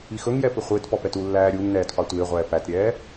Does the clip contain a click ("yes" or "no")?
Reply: no